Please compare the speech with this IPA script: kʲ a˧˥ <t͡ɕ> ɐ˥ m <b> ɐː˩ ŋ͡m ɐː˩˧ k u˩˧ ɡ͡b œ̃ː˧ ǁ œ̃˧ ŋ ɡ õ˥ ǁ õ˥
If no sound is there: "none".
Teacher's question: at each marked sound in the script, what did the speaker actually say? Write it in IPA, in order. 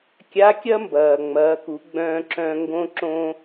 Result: kʲ, b

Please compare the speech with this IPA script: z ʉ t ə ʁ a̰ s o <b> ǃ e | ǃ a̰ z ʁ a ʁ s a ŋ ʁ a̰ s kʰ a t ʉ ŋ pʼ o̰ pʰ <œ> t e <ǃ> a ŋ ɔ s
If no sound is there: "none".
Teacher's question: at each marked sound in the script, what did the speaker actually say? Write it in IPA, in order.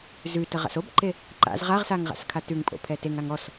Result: b, ɛ, ŋ

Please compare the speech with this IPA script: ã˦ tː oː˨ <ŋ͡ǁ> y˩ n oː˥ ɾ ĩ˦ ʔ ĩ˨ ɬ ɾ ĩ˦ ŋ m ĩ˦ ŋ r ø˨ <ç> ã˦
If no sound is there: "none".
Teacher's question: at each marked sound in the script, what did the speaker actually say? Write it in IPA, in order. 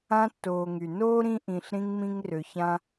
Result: ŋ, ç

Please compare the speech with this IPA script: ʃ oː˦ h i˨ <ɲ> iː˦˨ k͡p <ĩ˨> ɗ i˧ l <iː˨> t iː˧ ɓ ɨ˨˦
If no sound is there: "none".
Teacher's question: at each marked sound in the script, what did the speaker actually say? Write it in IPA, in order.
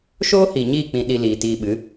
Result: ɲ, ĩ˨, iː˨

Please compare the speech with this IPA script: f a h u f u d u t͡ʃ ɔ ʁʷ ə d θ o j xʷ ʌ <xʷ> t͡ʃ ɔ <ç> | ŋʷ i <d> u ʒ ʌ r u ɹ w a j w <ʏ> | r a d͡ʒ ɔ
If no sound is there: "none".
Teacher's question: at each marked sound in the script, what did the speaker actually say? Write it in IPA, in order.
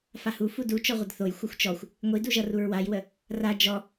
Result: xʷ, xʷ, d, ə

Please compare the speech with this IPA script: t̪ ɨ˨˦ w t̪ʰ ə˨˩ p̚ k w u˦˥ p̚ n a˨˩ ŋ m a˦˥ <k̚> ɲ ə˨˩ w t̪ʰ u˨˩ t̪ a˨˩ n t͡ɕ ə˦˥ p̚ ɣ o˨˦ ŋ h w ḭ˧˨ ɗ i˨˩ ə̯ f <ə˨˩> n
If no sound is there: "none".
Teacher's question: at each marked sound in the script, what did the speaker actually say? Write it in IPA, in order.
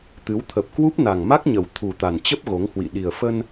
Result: k̚, ə˧

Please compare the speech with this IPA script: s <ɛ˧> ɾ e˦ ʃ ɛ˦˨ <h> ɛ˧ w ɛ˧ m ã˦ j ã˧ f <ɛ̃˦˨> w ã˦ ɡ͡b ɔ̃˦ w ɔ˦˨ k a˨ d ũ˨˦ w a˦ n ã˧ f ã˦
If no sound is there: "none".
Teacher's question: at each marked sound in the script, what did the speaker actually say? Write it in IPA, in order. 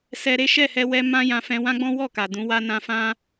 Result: ɛ˧, h, ɛ̃˧

